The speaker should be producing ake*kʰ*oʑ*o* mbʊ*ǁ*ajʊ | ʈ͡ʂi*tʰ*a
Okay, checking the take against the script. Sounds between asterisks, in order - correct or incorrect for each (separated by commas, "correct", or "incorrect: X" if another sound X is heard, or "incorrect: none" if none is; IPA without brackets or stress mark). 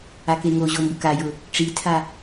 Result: incorrect: ŋ, correct, incorrect: k, correct